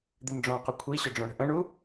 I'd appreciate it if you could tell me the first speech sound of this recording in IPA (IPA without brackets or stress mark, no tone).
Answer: d̪